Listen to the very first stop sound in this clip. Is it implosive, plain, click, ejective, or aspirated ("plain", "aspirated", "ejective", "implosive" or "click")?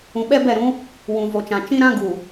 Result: implosive